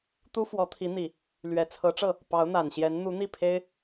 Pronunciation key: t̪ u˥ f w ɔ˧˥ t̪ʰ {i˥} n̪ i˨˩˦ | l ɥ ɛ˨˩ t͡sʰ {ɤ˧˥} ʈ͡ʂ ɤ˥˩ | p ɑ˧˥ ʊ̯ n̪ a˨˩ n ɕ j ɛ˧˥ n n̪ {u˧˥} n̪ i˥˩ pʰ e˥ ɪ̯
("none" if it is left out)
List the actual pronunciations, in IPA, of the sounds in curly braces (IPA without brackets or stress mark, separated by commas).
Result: i˧˥, ɤ˧˥, u˧˥